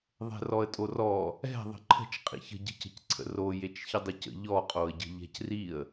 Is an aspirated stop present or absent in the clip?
present